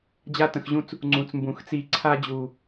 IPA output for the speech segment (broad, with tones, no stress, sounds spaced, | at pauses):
d͡ʑ a˦ t ə̃˨ x ʑ ũ˧ t͡s | ŋ͡ǀ ũ˨ t͡s m b ũ˨ x t͡s i˧ ǀʰ a˧ d͡ʑ u˨